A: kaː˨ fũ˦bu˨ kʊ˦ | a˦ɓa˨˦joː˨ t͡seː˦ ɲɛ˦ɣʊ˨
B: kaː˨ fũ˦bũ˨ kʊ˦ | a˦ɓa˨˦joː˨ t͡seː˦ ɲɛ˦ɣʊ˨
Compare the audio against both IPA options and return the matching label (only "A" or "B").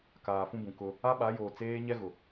B